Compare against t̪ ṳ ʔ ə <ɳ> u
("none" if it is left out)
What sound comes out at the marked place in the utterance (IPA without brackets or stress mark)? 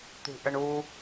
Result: ɳ